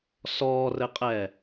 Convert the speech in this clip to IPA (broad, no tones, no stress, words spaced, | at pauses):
sɔːrɘqʼɛː